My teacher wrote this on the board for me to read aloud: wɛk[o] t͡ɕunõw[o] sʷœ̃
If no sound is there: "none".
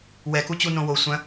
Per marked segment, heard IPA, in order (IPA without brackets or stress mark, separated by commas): u, o